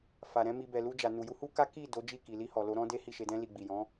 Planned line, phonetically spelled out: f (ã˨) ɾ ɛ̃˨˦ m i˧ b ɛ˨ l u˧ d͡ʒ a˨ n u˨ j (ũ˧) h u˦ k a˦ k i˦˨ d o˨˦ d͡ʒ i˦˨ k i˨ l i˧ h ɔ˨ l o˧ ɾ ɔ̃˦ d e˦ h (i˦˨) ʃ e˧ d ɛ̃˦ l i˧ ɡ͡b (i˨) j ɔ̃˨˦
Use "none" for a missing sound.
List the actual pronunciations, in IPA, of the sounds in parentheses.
a˨, u˧, i˦˨, i˨

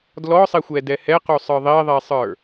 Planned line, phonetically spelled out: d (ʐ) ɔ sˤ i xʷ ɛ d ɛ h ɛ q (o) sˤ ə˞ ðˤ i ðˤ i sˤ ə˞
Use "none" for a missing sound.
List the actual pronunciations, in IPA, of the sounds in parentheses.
l, u

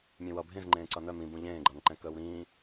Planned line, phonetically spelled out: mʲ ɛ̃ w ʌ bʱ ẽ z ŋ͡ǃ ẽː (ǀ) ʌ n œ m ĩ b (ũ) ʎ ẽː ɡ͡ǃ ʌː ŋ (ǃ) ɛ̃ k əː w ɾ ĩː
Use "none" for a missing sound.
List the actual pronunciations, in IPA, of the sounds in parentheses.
ǀ, ũ, ǃ

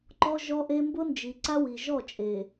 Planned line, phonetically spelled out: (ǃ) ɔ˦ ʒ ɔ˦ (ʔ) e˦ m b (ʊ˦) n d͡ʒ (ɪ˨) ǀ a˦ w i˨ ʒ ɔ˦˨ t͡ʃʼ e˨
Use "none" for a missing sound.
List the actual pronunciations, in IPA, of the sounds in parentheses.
ǃ, ʔ, ʊ˦, i˨

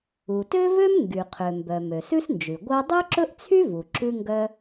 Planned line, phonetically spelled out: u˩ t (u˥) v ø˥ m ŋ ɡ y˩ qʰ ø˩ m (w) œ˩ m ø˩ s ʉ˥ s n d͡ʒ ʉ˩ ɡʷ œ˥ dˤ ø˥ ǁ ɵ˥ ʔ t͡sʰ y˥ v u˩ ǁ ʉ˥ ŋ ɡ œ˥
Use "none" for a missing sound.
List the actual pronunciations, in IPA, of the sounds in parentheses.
ø˥, b

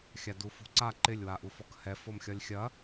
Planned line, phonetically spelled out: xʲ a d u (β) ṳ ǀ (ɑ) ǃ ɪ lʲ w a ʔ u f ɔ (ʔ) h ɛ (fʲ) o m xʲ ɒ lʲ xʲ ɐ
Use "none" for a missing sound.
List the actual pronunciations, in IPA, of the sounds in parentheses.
f, a, k, f

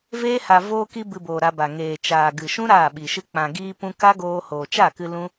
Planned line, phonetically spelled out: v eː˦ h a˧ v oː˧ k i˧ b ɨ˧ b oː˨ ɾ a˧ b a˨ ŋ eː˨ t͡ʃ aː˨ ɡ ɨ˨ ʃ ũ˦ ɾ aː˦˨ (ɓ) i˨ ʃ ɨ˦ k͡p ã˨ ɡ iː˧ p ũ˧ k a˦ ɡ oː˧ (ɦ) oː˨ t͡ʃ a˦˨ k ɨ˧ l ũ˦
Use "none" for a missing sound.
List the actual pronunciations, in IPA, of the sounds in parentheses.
ɓ, h

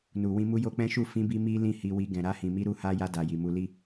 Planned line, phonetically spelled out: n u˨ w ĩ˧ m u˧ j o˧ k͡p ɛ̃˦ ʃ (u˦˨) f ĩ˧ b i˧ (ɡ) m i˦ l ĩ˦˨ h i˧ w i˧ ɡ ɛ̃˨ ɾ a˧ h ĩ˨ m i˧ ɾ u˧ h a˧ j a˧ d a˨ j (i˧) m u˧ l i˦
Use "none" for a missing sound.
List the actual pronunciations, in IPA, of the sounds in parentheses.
u˦˨, none, i˨

